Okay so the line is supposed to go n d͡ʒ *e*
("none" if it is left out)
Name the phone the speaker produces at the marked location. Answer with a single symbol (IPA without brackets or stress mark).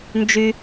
y